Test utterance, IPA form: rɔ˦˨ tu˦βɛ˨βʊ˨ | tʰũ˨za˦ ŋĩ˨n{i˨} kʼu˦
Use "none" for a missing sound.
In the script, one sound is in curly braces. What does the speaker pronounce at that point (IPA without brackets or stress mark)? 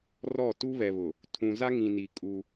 i˨